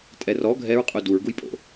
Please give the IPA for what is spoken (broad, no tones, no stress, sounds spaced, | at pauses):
tʼ ɛ r ɔ ɡʱ ɛ ɹ qʼ u d u ɹ ɡ u j pʼ o̰